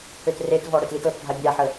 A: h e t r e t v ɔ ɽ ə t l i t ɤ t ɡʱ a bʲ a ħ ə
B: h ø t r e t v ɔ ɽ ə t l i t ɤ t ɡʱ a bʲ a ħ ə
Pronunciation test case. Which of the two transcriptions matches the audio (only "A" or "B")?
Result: B